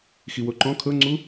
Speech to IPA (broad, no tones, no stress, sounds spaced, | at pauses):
x i w o ǃ ɔ̃ kʰ ɤ ŋ͡ǀ u